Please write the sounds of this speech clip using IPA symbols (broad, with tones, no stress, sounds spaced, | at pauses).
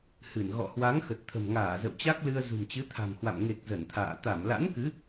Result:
h ɨ˧˩ n ɣ ɔ̰˧˨ h w a˨˦ ŋ x ə˨˩ t̚ t̪ʰ ə̤˨˩ m ŋ aː˧˩ z ə̰˧˨ w t͡ɕ a˦˥ k̚ l ɨ˧ ə̯ z ṳ˨˩ m t͡ɕ ɨ˨˦ t̪ʰ a̤˨˩ m h w a̰˧˨ m ŋ e˨˩ k̚ z ə˧˩ n t̪ʰ a̰ː˧˨ t̪ a˧˩ m l a̰˧˥ n k ɨ˨˦